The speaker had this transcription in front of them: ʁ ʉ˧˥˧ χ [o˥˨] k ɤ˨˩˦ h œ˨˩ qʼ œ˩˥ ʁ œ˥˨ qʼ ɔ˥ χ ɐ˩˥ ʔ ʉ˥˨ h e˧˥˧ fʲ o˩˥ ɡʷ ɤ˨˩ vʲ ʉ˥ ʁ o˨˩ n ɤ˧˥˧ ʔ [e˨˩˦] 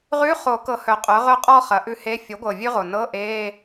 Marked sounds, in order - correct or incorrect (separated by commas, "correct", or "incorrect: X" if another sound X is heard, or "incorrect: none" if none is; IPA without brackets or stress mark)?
incorrect: o˨˩˦, incorrect: e˧˥˧